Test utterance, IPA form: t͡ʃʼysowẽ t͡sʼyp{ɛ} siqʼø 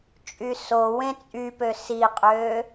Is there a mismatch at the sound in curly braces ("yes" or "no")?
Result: yes